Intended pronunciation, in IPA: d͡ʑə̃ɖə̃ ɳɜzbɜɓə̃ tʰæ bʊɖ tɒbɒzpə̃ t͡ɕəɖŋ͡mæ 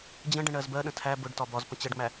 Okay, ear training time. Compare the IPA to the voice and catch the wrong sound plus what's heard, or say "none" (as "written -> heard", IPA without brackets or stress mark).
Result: ɓ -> ɗ